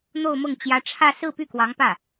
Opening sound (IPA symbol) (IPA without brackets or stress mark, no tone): n̪